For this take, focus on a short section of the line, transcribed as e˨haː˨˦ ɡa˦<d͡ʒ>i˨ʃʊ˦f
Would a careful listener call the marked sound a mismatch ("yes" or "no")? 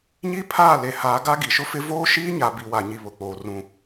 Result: yes